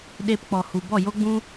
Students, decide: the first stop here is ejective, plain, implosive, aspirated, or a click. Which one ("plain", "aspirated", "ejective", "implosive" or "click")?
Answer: implosive